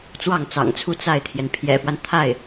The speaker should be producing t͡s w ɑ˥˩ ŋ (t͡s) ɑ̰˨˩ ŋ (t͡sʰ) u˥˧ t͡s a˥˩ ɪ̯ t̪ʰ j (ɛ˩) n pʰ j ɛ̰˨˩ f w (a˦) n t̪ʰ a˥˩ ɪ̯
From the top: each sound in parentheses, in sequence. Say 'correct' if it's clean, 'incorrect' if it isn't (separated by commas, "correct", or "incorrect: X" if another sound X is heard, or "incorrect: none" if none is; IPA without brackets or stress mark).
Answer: correct, correct, correct, correct